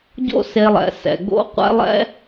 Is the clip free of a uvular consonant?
no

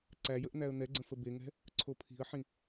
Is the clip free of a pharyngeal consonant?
no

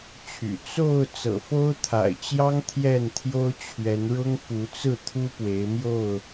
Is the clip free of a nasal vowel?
yes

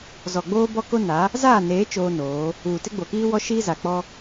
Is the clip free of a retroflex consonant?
yes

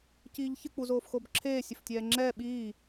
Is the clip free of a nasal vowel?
yes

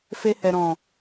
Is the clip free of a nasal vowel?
no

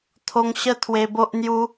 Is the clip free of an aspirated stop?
no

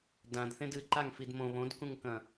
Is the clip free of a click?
no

